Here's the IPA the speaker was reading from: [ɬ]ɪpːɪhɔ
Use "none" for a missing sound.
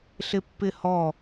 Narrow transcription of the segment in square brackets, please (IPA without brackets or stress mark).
ɬ